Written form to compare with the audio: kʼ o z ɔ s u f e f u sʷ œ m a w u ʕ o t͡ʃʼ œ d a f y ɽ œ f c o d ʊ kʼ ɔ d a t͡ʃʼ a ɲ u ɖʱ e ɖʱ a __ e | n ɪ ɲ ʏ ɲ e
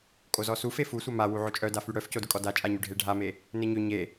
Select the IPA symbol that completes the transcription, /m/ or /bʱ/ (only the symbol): m